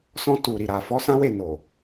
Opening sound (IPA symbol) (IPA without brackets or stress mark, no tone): s